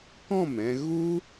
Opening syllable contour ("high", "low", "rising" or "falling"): falling